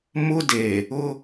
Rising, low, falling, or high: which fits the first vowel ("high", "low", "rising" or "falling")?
high